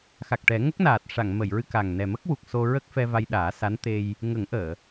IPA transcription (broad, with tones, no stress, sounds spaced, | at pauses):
x a˨˩ k̚ ʈ ɛ˨˩˦ ŋ ə˦˥ k̚ n aː˨˩ t̚ ʂ a˨˩˨ ŋ m ə˨˩˨ j ɹ ɨ˧ k a˨˩ ŋ n ɛ˨˩ m ə˦˥ k̚ w u˨˩ k̚ s o˧ ɹ ə˦˥ k̚ f ɛ˧ v a˧ j ɗ aː˨˩˦ s a˧˥ n t̪ e˧ j | ŋ ə˨˩˦ ŋ ʔ əː˨˩˨